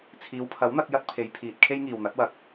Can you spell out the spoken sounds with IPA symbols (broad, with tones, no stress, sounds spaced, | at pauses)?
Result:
t͡sʰ iː˨˧ w pʰ ɐ˨˥ w n̪ ɐ˨˥ k̚ j ɐ˥ t̚ pʰ e˨˧ j pʰ iː˨ t̚ kʰ e˥ j ŋ iː˨ w n̪ ɐ˨˥ t̚ w ɐ˨ k̚